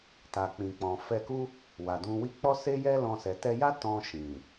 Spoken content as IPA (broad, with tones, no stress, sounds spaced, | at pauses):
t a˨ k͡p ĩ˨ k͡p ɔ̃˨ f ɛ˧ k u˦ | w a˨ d ũ˧ w i˦ k͡p ɔ˦ s e˦ j ɛ˦ l ɔ̃˧ s ɛ˨ t ɛ˧ j a˦ t ɔ̃˧ ʃ ĩ˨